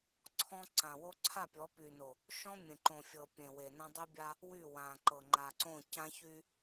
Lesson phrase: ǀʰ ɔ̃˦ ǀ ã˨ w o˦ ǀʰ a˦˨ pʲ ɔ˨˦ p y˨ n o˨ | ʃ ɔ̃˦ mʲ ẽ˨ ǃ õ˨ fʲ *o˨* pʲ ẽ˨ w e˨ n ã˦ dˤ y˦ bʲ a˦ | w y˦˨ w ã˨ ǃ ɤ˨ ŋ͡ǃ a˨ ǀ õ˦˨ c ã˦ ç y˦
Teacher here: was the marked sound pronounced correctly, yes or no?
no